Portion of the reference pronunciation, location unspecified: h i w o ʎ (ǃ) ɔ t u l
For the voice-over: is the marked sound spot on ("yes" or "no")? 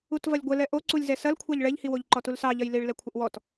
yes